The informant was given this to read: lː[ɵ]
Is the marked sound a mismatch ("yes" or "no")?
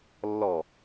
yes